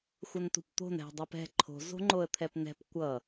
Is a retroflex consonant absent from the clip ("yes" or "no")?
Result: yes